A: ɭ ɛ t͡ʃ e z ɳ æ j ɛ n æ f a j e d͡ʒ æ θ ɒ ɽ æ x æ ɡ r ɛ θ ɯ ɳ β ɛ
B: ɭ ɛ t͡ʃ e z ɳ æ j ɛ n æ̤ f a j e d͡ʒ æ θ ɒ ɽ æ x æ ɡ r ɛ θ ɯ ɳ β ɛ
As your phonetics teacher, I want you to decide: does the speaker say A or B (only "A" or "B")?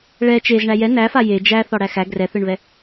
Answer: A